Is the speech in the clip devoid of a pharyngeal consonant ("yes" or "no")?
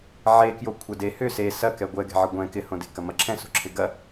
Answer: no